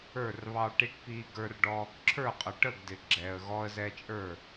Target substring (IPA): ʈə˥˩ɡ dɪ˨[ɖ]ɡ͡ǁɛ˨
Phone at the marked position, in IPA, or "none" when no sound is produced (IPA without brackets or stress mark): none